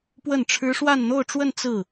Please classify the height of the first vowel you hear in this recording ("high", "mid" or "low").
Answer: mid